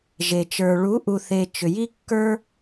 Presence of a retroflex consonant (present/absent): present